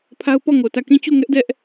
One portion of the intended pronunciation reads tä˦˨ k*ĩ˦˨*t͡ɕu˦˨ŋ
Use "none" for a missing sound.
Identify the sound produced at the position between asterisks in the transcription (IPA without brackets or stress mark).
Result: ĩ˦˨